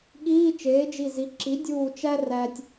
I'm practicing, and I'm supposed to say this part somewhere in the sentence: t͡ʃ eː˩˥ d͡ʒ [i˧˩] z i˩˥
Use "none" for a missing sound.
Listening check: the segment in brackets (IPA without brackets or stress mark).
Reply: i˧˩